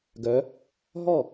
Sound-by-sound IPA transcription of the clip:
ɡœ˨˦ | ɦɔ˥˩

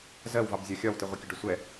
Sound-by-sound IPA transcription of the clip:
zɜwvɑb zʲɒxʲɒwtɪ ʁʷɪkʲʊɖʊsʷɛ

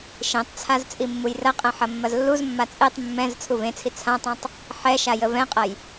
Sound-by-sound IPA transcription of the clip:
ʃẽtˤt͡sʰaz t͡sʼimːujrɐqʼɛ̃ ħɐmːɐzlːuzmːa t͡sʼetˤ mːɛ̃z t͡sʰuvẽt͡sʰi t͡sʰãtˤãtˤ | ħɛʃa jəvɛ̃qʼɐj

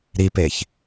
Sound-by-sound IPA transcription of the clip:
ɾipeç

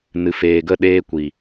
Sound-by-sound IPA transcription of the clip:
nɨ˨feː˨ɡə˦˨ ɗeː˧kʷi˨

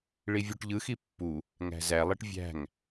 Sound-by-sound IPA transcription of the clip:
ɭivʲuʈʎɯxi pːu | ŋæ̤zælˠiʈ vʲæ̤ŋ

